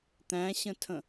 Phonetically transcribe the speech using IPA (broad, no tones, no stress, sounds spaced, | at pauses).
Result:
t̪ æ̃ ɕ ə̃ tʰ ə̃